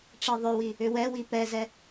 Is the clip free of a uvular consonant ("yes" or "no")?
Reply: yes